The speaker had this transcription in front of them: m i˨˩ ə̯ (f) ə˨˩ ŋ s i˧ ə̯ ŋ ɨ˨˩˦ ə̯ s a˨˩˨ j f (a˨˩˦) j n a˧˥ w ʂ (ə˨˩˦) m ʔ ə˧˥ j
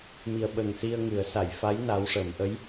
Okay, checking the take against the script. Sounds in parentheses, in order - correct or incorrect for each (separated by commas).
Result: incorrect, incorrect, correct